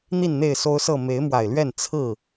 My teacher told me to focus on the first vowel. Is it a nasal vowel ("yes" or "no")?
no